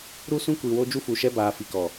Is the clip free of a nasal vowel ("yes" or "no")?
no